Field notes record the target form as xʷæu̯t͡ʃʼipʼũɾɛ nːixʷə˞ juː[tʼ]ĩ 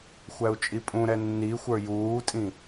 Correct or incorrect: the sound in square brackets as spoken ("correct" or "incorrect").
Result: correct